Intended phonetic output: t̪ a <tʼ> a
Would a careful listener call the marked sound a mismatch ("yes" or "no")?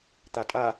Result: no